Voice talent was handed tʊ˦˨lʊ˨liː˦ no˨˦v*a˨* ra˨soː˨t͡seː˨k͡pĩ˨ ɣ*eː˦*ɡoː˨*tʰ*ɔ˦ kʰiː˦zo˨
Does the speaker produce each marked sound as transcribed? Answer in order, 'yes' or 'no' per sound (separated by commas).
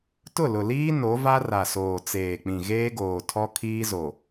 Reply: no, yes, yes